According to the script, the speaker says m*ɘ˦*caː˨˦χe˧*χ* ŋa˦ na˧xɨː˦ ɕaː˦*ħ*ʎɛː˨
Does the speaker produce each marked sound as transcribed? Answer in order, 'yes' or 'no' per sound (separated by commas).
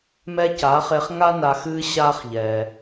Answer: no, yes, no